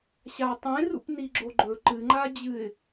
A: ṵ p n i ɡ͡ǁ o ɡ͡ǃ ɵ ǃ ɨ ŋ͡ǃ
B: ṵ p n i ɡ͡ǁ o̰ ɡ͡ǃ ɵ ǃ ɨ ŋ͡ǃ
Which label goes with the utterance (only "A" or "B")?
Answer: A